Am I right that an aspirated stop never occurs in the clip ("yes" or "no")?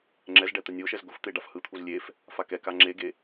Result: no